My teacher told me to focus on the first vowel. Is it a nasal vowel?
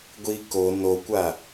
no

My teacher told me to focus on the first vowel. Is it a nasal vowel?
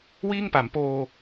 no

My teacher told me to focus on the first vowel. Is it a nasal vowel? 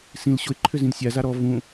yes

